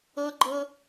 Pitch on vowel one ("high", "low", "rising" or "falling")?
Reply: high